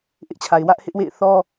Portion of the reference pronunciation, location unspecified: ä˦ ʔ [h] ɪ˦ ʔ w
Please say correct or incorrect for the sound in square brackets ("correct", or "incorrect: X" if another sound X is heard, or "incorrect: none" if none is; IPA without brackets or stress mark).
correct